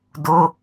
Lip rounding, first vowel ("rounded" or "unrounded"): rounded